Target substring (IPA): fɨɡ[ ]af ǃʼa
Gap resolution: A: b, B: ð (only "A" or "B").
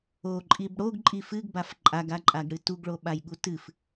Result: A